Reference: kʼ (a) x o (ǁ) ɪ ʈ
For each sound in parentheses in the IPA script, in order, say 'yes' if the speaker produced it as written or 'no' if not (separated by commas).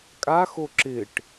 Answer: yes, yes